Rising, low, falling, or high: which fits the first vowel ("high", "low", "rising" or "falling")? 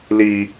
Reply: high